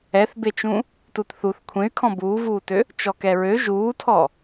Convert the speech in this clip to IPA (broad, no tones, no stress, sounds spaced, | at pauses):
ɛ θ b e t͡ʃ ũ | t u t θ u θ kʷʰ ẽ y̯ kʰ ɔ̃ b uː v uː t ø | t͡ʃ ɔ k ɛ ɹ ø ʒ uː tʰ ɔ